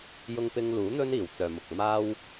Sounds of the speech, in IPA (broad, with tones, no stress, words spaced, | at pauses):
jʊ˧ŋpɪ˧ŋluː˨˥ n̪ɵ˥niː˨˩w t͡sœː˨mʊ˨k̚ maː˥w